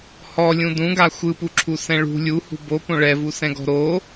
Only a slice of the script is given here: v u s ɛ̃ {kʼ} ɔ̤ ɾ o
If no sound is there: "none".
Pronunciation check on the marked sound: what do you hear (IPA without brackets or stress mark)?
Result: ɡ